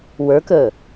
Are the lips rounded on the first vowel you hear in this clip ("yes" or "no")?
no